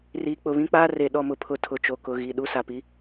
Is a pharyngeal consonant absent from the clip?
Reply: yes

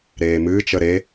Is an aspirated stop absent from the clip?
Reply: yes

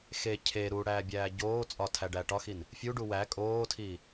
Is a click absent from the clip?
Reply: yes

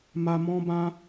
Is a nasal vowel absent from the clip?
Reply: no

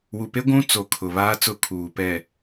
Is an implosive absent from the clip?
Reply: yes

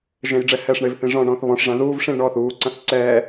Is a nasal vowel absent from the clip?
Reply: no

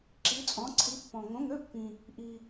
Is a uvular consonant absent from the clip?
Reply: yes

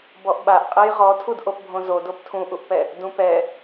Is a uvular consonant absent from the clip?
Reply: no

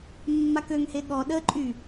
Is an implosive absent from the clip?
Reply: no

